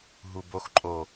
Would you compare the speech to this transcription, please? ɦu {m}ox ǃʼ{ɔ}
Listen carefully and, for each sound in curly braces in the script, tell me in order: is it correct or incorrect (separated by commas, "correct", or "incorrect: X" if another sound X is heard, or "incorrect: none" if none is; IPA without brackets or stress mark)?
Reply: incorrect: b, incorrect: o